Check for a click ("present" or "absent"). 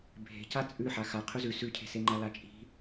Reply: present